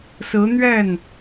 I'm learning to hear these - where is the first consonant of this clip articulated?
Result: tongue tip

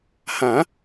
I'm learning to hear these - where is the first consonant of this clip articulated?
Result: throat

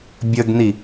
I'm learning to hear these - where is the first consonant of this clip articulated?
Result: lips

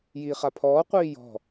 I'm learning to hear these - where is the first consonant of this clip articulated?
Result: palate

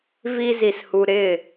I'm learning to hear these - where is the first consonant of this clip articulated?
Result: lips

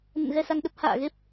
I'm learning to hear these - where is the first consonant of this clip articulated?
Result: tongue tip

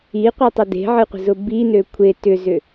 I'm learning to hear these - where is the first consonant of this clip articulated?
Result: uvula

